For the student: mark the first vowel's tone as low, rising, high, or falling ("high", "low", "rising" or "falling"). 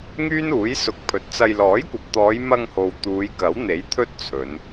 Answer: high